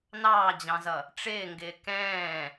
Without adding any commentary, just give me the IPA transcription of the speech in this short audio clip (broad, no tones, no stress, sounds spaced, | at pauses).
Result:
n ɑː d͡ʑ ɑ̃ z ʌ | ʈ͡ʂ ɪː ŋ ɡ ɪː k ɛ̃ː